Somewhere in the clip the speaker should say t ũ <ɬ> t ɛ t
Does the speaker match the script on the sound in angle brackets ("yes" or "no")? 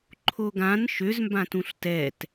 yes